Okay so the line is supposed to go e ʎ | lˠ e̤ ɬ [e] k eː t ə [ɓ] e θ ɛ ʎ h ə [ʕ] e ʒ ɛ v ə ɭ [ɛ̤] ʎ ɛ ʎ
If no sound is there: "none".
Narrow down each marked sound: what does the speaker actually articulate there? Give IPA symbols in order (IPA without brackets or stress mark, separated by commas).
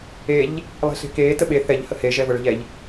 e̤, ɓ, h, ɛ̤